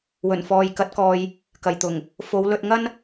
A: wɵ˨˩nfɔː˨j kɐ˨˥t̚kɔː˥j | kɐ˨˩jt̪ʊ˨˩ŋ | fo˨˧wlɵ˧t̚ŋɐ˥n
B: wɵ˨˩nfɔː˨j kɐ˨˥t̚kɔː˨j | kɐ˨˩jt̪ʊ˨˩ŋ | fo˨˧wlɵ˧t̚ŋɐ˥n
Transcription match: B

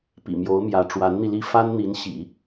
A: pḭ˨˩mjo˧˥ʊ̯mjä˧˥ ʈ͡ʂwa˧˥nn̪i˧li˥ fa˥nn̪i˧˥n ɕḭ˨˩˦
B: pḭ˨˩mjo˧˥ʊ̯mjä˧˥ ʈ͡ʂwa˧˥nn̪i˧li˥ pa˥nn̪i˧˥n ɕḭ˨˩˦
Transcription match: A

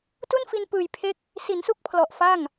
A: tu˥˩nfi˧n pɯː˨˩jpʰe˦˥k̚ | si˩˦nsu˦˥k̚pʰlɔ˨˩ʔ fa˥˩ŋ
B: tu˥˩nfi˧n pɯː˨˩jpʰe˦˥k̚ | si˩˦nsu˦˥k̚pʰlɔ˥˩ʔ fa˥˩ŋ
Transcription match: A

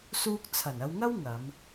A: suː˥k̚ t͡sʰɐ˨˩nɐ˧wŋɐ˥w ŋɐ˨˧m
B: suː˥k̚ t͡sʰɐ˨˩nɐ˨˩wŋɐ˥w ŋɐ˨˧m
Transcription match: A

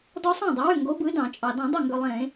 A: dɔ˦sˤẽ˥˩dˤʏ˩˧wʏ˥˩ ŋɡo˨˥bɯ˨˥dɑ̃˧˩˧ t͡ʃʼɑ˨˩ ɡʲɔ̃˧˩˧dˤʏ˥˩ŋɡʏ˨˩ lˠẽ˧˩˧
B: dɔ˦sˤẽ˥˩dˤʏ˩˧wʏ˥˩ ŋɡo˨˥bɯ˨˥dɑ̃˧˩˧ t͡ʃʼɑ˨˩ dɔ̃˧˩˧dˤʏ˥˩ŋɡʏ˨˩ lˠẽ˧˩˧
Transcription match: B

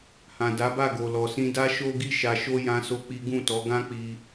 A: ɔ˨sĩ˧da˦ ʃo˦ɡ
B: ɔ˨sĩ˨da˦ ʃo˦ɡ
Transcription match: A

